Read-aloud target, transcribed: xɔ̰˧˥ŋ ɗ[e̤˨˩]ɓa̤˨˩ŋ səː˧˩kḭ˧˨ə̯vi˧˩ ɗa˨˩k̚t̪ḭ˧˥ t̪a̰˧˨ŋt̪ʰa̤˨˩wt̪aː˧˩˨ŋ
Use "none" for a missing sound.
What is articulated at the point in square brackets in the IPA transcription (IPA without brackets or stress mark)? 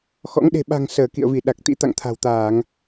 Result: e̤˨˩